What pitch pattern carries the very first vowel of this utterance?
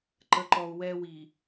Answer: low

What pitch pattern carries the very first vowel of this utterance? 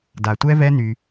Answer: low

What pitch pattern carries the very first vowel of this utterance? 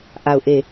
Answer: falling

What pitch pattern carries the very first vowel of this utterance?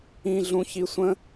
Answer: low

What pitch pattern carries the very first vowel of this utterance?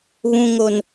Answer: low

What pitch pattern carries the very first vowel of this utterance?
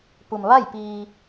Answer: low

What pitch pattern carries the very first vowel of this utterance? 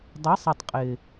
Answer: rising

